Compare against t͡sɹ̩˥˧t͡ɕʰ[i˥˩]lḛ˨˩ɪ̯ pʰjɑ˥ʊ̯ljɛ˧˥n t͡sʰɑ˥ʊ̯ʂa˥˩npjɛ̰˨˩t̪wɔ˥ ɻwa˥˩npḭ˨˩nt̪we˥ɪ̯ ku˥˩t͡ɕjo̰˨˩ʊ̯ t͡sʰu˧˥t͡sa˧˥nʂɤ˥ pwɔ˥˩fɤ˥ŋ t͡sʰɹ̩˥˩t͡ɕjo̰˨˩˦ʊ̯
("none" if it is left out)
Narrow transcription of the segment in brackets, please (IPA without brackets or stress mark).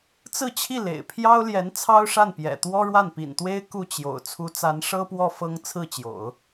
i˥˩